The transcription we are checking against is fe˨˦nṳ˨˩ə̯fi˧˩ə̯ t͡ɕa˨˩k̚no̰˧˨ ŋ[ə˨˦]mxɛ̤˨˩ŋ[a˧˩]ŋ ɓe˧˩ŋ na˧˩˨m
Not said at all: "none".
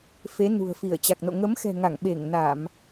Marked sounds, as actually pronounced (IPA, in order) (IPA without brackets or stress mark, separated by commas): ə˨˦, a˧˩